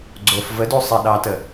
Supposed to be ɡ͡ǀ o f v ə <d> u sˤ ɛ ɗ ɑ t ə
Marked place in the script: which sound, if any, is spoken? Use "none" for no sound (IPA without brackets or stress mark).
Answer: d